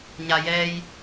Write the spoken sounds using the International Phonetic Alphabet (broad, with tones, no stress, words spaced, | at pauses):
ɲa˩ jɛː˧j